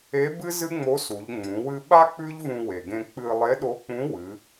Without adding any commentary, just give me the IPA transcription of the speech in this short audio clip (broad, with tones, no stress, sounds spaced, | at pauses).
e˧˥ b ɨ˥ z ɨ˥ ŋ͡m o˧˥ s u˩˧ ʎ ŋ͡m ũ˩˧ w ɨ˧ ɓ a˥ k͡p ʉ˥ ʎ v ũ˧ w e˩ ɡ ẽ˧ k͡p ɨ˧ lˠ e˧˥ ɗ o˧˥ k͡p ũ˧˥ w ɨ˩˧